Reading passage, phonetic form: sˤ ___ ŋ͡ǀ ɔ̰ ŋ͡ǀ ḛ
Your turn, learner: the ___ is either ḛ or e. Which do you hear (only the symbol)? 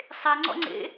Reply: e